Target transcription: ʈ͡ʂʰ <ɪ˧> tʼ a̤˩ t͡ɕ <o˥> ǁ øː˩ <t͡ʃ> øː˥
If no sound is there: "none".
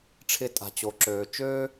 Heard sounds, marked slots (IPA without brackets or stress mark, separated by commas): ɪ˧, o˩, t͡ʃ